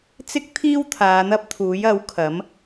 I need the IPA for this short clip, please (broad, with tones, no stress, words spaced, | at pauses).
t͡sɪ˥k̚t̪ʰiː˥w t̪ʰaː˨˧n̪ɐ˥p̚t̪ʰuː˨˥jɐ˨˥w kʰɐ˨˥m